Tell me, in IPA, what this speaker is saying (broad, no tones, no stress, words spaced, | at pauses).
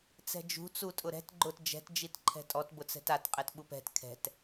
t͡sɛ̤d͡ʒṳ t͡sutʼʊɾɛ̤t ɡ͡ǃʊt d͡ʒɛ̤t d͡ʒitǃʰɛ̤tʼɔt bʊt͡sɛ̤tat qʼɛtɓupɛ̤t kʰɛ̤t